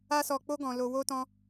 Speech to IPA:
a˦ s ɔ˧ k͡p o˦ ɡ ɔ̃˧ l o˧ w o˦ t ɔ̃˦

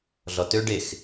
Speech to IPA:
ɮ ɔ t ø ɖ e x

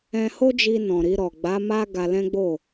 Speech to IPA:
ɛ̃˧ h o˦ d͡ʒ i˧ n ɔ̃˨ ɾ i˧ ɾ ɔ˨ ɡ͡b a˨˦ m a˦ ɡ a˧ l ɛ̃˦ ɡ͡b o˦˨

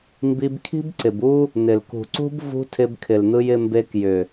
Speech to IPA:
m b i˧ b kʰ i̤˦ b ǀ ɪ˨ b u˦ | n̪ ɪ˨ l k ṳ˨ ǀ ṳ˦ b v ṳ˧ tʰ ɪ˧ b kʰ ɪ˨ l n̪ ɯ˧ j ɪ˧ m b e˧ k j ʏ˨

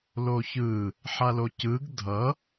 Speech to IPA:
l o ç ɯ | ħ a l o c ɯ ɡ dʱ ʌ

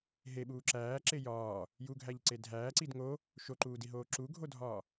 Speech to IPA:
ɦ e ɓ uː ǁ æː ǁ e j ɒː | j u ɡʱ æ ʎ ǀ e dʱ æː ǀ i d ŋ o | ʃ o ǃ uː d i ɦ oː ǁ u ɡʱ o dʱ ɒː

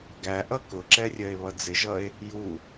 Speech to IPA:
ɡ æ ʔ ʌ k ʊ ǁ ɛ rʲ ɜ e̯ β ʌ d͡z ɪ ʒ ʌ e̯ | j u

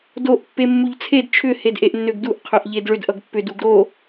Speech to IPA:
d o ʔ pː e mː u ʎ t͡sʰ e d t͡ʃʰ ʏ h e d ʔ e ʔ nː ø ɡ d u ʔ qʰ ø ʔ ʎ e d ɭ ʏ d ʔ ʌ ɡ pː ʏ d u ɡ ɾ o

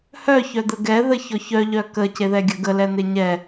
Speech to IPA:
h œ ç œ d̪ ə ɡ ɛ ð ə ç ɔ ç œ ʎ œ k ə c e ð ɛ ɡʲ ə ɡ ə l ɛ n̪ e ɲ ɛ

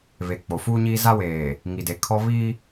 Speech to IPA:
β e˨ k͡p o˨ f uː˦ ɲ iː˦ z a˦ w eː˨ | ŋ i˨ d e˨ kʰ ɔ˦ β i˦

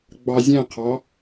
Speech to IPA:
ɡ͡b ɑ zʲ æ̃ qʰ ɑ

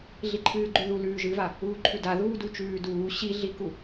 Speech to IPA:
ɮ i ǃʰ ɨː ɡ͡ǃ ʉ ð u l ʉː ʒ ɨ v a | uː ǃʰ ʉ d a ð uː d u t͡ʃ ʉː d uː ɕ i ɮ i k u

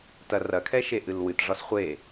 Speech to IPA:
t ɐ r ɐ kʰ ɛ ʃ e ʔ ɨ l w ɨ t ʐ ɒ s χʷ e

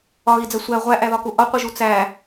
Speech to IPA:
ɒ ɣ i d͡z æ sʷ æ ʁʷ æ ʔ æ ð ɒ k u ʔ ɒ qʷ i ʒ u t͡s æ

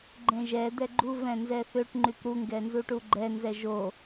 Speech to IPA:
ɡ͡ǃ ẽ ʒ ɛ d̪ ɛ ɡ͡ǃ u v ɛ̃ n z ɛ θ ø ʈ ŋ͡ǃ y p ɾ u ŋ ɡ ɛ n z u ʈ u ɡ͡ǃ ɛ n z ɛ ʒ o

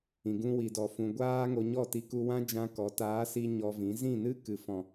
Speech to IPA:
ĩ˨ ɡ ũ˧ w i˨ d ɔ˨ f ũ˨ ɡʷ aː˦ ŋ o˧ ɲ ɔ˦˨ t i˧ k u˧ w ã˦ d͡ʒ ã˦ k ɔ˨˦ t aː˨˦ s i˧ ɲ ɔ˧ v ĩ˨˦ z ĩ˦˨ n ɨ˦ k ɨ˨ f ɔ̃˨

